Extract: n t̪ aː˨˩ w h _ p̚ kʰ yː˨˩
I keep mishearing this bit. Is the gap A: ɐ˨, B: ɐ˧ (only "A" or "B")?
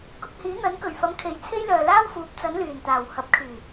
A